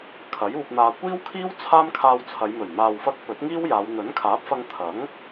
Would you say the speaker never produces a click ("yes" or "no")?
yes